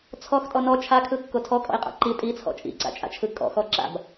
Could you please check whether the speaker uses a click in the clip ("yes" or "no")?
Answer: yes